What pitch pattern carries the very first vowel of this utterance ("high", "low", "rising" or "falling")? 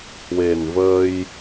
low